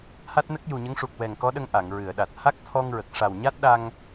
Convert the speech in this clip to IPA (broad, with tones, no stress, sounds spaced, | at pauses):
h a˦˥ t̚ n ə˦˥ k̚ j u˨˩ ɲ ə˧˥ ŋ ʂ u˨˩ k̚ w ɛ˨˩ ŋ k ɔ˧˥ ɗ ə˧ ŋ ʔ a˨˩˨ ŋ ɹ ɨ˨˩˨ ə̯ ɗ a˨˩ t̚ h a˦˥ k̚ t̪ʰ ɔ˧ ŋ ɹ ə˨˩ k̚ ʂ a˨˩ w ɲ a˦˥ t̚ ɗ a˧ ŋ